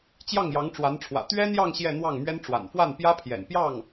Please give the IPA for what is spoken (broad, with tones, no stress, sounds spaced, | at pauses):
t͡ɕ j ɑ˥˩ ŋ j ɑ˧˥ ŋ ʈ͡ʂ w a˧˥ n ʈ͡ʂʰ w ä̰˨˩ t̪ ɥ ɛ˥ n̪ j ɑ˥˧ ŋ ɕ j ɛ˥˧ n̪ w ɑ˥˩ ŋ m ɥ ɛ˥ n ʈ͡ʂ w a̰˨˩ n f w a˥˩ n p j ä˥ pʰ j ɛ̰˨˩ n p j ɑ˥˩ ŋ